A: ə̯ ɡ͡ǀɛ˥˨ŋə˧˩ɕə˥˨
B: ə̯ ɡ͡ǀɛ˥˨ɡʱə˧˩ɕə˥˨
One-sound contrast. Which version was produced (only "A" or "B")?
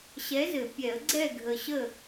B